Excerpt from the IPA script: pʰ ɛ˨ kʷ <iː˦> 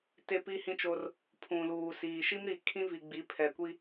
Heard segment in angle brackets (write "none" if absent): i˦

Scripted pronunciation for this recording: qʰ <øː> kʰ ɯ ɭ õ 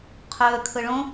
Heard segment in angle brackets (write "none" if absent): øː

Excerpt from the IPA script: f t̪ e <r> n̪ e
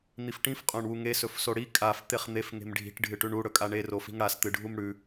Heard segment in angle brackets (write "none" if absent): χ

